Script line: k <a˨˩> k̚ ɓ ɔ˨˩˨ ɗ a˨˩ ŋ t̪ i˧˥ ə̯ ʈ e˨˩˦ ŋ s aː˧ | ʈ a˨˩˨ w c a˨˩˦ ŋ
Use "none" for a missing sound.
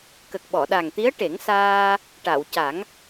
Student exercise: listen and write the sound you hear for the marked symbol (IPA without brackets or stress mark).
ə˨˩